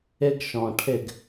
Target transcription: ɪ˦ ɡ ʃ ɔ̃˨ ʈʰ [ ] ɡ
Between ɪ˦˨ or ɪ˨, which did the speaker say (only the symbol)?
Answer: ɪ˦˨